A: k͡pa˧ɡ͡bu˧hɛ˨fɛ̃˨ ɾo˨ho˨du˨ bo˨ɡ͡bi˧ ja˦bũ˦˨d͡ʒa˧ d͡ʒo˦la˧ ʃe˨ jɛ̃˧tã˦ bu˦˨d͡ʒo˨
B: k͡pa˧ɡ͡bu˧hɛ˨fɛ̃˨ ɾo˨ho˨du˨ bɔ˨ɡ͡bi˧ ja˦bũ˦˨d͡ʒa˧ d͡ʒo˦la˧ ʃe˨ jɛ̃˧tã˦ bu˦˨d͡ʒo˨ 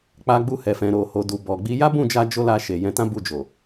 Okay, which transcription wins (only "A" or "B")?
B